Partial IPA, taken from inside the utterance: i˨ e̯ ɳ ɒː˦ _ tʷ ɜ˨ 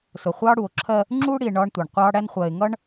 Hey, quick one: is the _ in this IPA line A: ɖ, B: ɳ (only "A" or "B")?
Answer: B